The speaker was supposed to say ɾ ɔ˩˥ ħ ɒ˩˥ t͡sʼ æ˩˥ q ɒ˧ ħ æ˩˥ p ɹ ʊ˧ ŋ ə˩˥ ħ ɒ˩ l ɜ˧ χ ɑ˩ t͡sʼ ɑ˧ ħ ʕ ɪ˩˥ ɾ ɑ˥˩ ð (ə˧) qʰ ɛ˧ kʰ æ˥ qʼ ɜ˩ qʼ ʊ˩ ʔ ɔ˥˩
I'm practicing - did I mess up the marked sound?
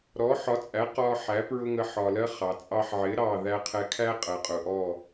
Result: yes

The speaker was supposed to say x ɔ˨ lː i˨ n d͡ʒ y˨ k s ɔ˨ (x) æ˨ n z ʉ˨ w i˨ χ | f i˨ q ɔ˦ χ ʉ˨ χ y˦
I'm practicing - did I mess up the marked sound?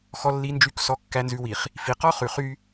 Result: yes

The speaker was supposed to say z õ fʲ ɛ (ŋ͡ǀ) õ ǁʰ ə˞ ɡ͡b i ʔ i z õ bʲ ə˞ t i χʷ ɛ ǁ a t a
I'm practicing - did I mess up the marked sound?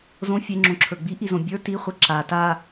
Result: yes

